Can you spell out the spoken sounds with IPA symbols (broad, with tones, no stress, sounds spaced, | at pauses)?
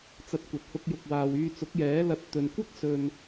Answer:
t͡s ɐ˧ t̚ kʷ ɐ˨ t̚ h ʊ˧ k̚ j ʊ˨ k̚ w aː˨ w yː˧ t͡s ʊ˨˥ k̚ j ɛː˨˥ l ɐ˧ t̚ t̪ ɵ˨ n kʷ ɐ˥ k̚ s ɵ˧ n